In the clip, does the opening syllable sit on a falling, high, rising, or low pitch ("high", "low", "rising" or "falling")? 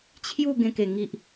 falling